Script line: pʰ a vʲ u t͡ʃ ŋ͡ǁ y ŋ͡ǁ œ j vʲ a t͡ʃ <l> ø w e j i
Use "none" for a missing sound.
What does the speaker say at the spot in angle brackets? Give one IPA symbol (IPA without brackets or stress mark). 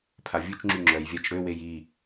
ɽ